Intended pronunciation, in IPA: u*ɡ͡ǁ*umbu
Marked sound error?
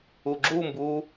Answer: no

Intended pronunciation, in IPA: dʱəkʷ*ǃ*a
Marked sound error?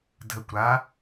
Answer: yes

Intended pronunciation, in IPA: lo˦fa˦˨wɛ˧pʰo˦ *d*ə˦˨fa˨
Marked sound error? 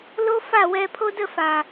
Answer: no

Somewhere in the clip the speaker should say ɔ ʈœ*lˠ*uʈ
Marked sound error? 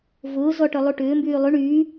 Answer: no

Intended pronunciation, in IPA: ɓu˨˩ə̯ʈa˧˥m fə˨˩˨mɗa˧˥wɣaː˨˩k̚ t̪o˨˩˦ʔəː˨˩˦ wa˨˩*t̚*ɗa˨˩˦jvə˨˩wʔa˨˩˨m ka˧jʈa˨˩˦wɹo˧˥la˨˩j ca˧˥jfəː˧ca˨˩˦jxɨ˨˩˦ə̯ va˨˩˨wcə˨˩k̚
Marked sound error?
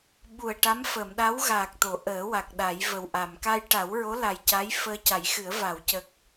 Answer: yes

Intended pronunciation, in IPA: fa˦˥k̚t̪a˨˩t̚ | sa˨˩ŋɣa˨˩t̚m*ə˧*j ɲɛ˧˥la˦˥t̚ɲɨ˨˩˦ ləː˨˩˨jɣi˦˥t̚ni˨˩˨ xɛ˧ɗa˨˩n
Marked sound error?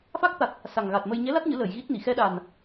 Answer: no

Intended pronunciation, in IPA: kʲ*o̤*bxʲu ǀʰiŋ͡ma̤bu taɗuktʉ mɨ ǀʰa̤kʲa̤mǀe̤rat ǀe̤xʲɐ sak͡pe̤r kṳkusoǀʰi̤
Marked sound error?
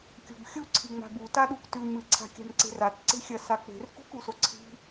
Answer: no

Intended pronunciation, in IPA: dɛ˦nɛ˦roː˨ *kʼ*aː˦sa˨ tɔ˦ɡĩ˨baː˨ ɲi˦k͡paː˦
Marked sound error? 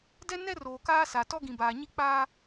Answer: yes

